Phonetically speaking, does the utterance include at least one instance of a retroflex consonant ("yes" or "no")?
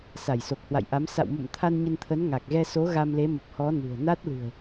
no